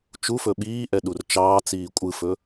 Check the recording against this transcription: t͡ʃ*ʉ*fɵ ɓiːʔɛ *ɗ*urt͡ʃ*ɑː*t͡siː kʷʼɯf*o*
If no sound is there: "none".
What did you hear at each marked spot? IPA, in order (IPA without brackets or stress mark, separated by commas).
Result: u, ɗ, ɑː, ɵ